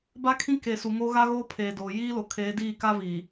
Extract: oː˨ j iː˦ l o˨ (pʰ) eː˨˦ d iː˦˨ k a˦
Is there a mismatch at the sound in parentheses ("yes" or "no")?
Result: yes